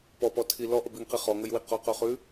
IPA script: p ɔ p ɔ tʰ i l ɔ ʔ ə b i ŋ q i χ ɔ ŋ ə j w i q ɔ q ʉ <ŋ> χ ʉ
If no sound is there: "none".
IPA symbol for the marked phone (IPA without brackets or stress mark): none